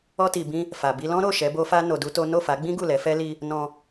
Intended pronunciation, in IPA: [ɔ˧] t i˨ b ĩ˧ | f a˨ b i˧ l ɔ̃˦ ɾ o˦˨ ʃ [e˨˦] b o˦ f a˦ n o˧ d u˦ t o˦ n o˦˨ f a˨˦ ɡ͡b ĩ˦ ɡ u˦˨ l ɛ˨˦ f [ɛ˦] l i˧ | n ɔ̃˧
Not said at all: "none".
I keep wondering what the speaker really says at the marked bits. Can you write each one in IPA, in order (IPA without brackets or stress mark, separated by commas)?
ɔ˧, ɛ˨˦, ɛ˦